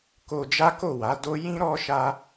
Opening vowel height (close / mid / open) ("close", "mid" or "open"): mid